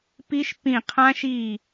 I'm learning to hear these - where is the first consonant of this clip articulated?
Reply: lips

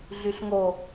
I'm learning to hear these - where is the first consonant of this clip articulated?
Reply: tongue tip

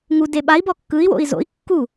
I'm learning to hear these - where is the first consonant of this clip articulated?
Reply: velum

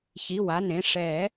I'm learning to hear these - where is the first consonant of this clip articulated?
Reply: palate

